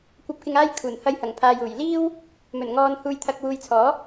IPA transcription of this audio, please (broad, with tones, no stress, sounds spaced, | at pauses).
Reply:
kʷ ɐ˧ p̚ k ɪ˧ ŋ aː˥ j kʰ uː˨˩ n h ɐ˨˥ j h ɐ˨˩ ŋ pʰ aː˨ j uː˨˩ j l iː˥ w | m ɵ˨˩ n ŋ ɔː˨ n h uː˧ j t̪ʰ ɐ˧ k̚ w uː˨ j t͡sʰ ɔː˨˥